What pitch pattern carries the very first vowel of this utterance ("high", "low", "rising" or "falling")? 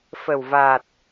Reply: low